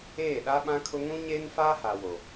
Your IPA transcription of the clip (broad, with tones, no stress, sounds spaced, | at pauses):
eː˦˨ ɗ a˦ ɓ ã˦ kʰ ʊ˦ ŋ ũ˦ ɲ eː˦ n f aː˦ h a˨ w o˨